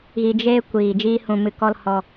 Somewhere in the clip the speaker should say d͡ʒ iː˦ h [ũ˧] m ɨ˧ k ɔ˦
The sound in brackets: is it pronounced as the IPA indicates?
yes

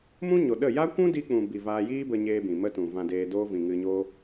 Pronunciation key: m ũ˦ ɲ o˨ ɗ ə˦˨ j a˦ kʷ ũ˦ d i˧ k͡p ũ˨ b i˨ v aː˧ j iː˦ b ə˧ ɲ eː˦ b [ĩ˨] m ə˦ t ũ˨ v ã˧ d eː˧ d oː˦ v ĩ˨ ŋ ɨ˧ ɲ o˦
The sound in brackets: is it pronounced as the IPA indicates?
yes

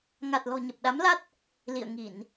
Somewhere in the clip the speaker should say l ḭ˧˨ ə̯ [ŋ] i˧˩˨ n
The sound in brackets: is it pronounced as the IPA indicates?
yes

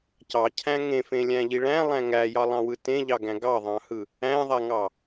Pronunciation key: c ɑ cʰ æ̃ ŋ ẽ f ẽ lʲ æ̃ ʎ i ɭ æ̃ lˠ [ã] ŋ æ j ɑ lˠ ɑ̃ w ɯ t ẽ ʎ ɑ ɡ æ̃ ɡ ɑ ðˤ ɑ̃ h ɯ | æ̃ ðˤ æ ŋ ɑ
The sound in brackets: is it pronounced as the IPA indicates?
no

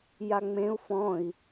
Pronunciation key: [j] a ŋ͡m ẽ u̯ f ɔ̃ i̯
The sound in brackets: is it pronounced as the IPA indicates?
yes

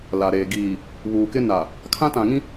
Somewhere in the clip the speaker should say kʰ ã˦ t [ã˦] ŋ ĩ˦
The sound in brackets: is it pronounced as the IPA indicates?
no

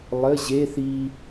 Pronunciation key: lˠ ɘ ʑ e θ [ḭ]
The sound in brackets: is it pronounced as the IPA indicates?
no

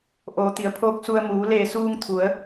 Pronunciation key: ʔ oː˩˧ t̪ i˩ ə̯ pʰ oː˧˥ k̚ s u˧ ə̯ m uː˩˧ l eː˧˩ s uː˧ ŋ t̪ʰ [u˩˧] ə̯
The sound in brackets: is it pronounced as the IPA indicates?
yes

